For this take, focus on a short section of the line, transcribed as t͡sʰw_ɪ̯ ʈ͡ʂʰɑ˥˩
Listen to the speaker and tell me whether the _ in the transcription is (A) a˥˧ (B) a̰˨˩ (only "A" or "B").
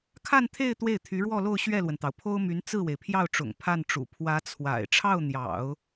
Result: B